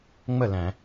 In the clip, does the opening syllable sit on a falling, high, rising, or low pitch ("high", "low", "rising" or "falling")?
falling